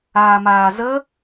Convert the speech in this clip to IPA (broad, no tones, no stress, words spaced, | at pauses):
aːmaːzə